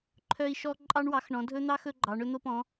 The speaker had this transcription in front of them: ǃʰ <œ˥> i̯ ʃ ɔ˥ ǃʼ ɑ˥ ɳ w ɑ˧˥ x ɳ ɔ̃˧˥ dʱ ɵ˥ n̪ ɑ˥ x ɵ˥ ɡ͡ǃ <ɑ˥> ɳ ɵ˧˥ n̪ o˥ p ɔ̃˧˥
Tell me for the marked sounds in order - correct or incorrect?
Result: correct, incorrect: ɑ˧˥

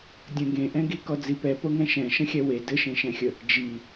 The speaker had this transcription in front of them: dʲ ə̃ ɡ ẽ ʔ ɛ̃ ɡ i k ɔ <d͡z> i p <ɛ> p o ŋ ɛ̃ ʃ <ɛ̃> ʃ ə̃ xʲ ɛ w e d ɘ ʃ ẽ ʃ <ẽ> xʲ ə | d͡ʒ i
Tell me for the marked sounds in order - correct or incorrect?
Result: correct, correct, correct, incorrect: ɛ̃

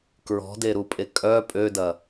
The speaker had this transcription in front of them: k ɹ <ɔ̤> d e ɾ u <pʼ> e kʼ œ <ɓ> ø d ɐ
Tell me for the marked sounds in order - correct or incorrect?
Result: correct, correct, incorrect: pʼ

